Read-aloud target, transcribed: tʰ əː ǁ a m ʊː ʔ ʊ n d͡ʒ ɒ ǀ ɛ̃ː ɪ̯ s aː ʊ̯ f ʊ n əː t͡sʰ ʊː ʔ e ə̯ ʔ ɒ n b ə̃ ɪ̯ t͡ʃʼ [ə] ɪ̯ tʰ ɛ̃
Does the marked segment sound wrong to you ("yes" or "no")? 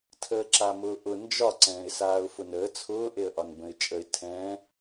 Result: no